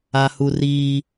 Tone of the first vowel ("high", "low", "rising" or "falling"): high